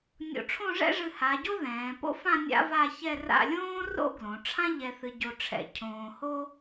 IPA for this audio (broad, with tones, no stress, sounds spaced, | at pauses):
nʲ o̰˧ ʈ͡ʂʰ õ˥˧ ʐ ɛ̰˥ ʐ ɨ˧ h a˩˧ ɟ o˥ ð ɛ̃ː˩˧ p o̰˥ f ã˥˧ nʲ a̰˥ v a˥˧ ç ɛ˥˧ r a̰˥˧ lʲ õː˥ r o̰˥ ɡ l õ˩˧ ʈ͡ʂʰ ã˥ ʎ ɛ˧ θ ɨ˧ ɟ o˧ ʈ͡ʂʰ ɛ̰˧ cʰ õː˧ h o˥